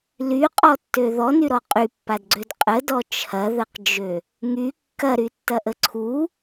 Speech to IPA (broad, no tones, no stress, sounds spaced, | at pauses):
l y qʼ ɔ tː ø ð ɔ n y ɾ ɔ qʼ y pː a d ɡ͡ǀ ø d qʼ ə d ɔ t͡ʃʰ ɐ ð ə q d͡ʒ ø | ŋ y kː ɐ ɾ y tː ɐ ʔ ə ǀʰ u